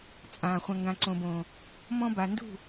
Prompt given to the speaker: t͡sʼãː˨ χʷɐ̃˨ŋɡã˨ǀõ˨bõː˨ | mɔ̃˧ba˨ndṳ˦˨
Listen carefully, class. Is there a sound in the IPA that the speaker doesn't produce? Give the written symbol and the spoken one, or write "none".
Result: none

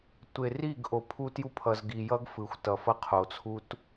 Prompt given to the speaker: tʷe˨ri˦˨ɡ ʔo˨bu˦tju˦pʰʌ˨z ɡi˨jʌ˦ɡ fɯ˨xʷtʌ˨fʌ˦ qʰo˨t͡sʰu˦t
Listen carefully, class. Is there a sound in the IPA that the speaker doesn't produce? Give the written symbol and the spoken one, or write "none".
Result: b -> pʰ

